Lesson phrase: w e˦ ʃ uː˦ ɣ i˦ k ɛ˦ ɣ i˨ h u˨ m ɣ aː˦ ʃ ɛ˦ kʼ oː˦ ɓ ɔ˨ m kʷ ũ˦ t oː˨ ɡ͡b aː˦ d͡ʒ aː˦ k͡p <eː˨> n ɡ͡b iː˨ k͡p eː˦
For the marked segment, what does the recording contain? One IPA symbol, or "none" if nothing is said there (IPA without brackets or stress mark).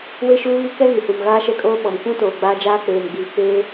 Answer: eː˨